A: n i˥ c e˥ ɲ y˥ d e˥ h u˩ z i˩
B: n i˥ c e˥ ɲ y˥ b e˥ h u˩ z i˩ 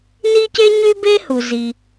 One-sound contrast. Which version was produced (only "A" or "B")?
B